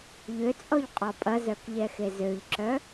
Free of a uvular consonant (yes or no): no